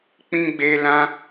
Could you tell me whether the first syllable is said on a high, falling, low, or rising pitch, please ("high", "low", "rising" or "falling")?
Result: high